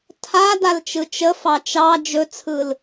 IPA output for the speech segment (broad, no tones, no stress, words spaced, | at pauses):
tʰa dalt͡ʃɯt͡ʃəfɑ t͡ʃɑ d͡ʒɵt͡sʰɯl